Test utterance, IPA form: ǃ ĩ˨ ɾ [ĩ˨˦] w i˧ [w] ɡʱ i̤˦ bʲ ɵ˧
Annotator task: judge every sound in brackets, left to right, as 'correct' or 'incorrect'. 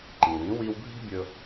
correct, correct

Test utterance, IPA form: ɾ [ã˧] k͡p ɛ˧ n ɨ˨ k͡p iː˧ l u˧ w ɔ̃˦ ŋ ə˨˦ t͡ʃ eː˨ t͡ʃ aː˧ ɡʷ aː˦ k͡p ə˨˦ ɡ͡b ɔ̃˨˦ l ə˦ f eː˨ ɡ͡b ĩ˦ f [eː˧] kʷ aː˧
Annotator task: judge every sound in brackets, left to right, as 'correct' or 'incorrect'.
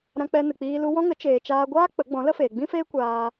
correct, incorrect

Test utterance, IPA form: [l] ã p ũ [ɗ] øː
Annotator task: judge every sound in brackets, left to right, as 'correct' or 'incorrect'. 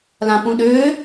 correct, correct

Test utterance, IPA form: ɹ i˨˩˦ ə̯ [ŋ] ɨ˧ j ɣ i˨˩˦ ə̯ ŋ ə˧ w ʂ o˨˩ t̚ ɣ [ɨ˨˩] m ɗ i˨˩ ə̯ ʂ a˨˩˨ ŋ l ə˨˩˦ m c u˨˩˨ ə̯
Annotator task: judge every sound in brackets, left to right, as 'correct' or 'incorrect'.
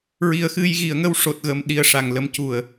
incorrect, incorrect

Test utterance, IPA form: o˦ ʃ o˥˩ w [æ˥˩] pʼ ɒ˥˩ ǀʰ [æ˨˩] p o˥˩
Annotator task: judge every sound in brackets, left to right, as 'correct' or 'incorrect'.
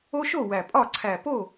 incorrect, correct

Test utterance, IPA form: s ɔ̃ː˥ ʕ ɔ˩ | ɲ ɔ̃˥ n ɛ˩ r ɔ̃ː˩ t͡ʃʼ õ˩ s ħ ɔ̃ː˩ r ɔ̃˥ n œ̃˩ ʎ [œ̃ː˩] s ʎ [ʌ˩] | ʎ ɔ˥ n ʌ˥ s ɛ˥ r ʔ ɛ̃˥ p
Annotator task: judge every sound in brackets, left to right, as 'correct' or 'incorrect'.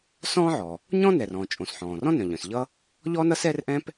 incorrect, incorrect

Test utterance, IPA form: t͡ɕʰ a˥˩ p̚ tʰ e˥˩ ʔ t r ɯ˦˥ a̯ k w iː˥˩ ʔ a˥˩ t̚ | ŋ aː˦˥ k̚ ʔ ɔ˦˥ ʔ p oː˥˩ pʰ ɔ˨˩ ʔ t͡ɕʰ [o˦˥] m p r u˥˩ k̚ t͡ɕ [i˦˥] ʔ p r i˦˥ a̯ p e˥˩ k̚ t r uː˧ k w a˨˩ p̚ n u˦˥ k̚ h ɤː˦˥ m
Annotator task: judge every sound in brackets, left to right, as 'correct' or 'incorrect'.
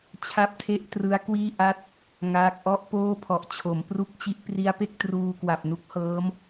incorrect, correct

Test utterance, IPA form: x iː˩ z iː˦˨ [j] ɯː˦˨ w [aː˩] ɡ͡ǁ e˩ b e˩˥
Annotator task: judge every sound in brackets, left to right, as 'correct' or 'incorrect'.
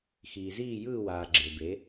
correct, correct

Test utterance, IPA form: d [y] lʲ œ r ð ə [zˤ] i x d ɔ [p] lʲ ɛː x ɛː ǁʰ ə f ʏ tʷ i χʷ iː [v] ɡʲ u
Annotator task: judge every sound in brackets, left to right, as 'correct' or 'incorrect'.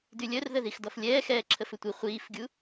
correct, incorrect, incorrect, incorrect

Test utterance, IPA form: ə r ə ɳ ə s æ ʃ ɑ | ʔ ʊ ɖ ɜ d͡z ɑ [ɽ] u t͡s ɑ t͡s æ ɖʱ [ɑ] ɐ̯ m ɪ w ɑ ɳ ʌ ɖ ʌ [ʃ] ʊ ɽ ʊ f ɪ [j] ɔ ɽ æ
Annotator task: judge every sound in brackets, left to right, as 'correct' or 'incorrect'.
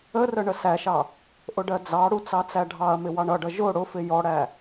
correct, correct, incorrect, correct

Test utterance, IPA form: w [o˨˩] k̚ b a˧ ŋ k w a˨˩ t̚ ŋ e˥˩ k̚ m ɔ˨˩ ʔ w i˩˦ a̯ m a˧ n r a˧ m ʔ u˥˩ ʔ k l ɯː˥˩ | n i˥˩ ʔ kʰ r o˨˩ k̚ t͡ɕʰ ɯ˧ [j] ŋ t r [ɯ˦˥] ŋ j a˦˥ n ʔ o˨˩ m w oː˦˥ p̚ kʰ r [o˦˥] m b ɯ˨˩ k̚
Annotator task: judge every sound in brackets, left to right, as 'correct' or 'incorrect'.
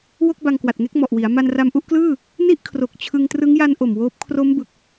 incorrect, incorrect, correct, correct

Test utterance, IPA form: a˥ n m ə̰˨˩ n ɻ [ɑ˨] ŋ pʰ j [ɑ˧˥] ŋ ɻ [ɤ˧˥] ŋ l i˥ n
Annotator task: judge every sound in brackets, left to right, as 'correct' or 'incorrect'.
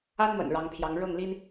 incorrect, correct, incorrect

